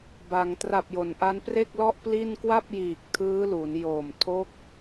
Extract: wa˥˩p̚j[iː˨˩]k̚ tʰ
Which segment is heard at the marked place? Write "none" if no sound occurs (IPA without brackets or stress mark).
iː˨˩